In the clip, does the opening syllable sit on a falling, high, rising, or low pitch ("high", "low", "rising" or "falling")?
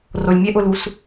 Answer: low